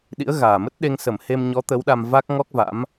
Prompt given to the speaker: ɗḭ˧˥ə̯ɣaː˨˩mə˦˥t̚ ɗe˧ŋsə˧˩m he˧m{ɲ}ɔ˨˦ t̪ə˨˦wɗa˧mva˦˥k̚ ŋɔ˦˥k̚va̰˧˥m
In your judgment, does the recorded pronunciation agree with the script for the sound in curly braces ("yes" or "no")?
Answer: yes